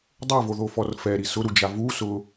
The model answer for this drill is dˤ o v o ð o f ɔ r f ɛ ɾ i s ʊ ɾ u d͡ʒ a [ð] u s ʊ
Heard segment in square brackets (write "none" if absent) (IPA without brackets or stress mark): v